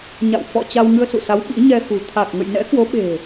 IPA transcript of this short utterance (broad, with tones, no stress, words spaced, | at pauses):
ɲa̰˧˨w fɔ̰˧˨ t͡ɕa˧wŋɨ˧ə̯sṵ˧˨sa˨˦w ɓḭ˧˥ɲɛ˧xṳ˨˩ t̪ʰa˨˩k̚ŋə̰˧˨j nɛ̰˧˥kwo˨˦ɓe̤˨˩